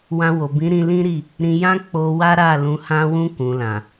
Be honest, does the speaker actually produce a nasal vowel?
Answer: yes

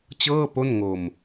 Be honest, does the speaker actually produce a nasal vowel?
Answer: no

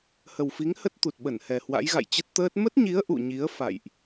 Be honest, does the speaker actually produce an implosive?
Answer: yes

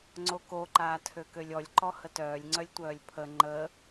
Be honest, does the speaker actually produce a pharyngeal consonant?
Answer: no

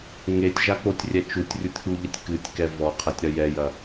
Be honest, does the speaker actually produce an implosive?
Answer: no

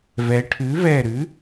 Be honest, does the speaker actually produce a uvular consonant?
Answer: no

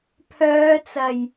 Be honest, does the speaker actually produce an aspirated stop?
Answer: yes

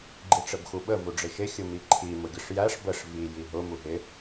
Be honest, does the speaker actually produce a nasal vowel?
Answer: no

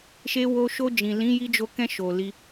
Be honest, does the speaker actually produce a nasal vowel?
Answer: yes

